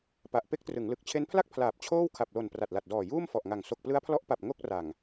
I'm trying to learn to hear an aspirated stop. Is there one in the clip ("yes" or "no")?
yes